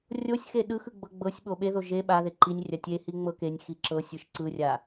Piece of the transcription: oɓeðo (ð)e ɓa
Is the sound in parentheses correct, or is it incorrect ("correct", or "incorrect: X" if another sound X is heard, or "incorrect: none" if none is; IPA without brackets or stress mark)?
incorrect: ʒ